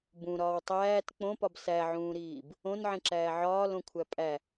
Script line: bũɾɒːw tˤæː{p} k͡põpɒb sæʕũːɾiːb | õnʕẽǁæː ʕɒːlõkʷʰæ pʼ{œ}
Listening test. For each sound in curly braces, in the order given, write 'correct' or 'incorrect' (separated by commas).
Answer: incorrect, incorrect